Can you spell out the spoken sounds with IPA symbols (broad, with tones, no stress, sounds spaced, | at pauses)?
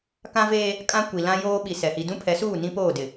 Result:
k ã˦ v eː˦ | kʼ ã˦ kʷ i˨ l ã˦ j oː˦ ɓ i˨ s ɛ˨ h i˨ d ũ˦ pʰ ɛ˨˦ s uː˦˨ n ĩ˦ p oː˦˨ d ɪ˨